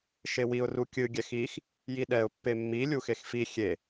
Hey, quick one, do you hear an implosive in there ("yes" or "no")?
yes